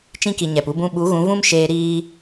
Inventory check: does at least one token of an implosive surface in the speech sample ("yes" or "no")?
yes